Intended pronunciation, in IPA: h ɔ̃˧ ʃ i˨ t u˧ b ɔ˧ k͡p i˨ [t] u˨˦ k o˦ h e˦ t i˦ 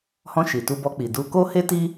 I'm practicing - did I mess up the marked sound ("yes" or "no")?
yes